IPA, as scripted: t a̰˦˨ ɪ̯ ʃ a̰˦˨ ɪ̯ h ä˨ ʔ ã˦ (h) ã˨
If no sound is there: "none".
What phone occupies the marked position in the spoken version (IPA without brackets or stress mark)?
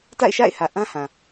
h